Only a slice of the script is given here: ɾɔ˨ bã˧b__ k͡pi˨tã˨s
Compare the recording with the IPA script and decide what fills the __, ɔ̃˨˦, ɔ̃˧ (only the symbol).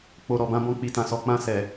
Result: ɔ̃˧